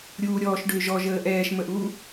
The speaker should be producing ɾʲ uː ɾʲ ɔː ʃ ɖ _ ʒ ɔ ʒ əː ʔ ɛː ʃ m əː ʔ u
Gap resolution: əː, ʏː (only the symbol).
ʏː